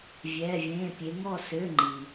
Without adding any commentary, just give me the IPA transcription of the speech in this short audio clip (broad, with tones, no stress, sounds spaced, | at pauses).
vʲ ɛː˧˥˧ vʲ ẽː˧˥˧ pʲ e˧˥ ŋ ɔ˦˨ s ø˧˥˧ ŋ͡ǃ i˨